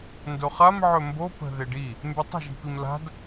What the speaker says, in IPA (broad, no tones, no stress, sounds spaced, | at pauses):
n d o χ a m ʕ ɵ m b o p ə̤ ð e ɖ i | m b y tˤ ə̤ ʒ i̤ p i m l a̤ d